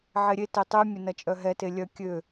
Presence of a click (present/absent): absent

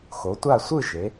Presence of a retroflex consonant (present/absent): absent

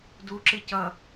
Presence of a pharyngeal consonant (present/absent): absent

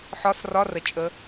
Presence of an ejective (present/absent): present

